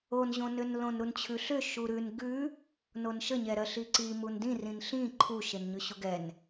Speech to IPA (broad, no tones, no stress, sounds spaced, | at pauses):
o n ʑ õ n ʏ n l õ n ɾ u n t͡ɕʰ ʉ ɬ ʏ ʃ u ɾ ʉ n ɡ ʉ | n o n ʃ ə ɲ ɛ ɾ ɜ ɬ i ǀ i m u n d ĩ r ĩ n ɬ ĩ ǃʰ u ʃ e n ɲ ʉ ɕ u ɡ ɛ n